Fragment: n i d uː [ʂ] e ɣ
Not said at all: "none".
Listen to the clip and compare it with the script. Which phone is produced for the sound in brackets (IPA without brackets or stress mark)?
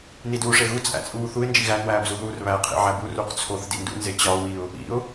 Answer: ʂ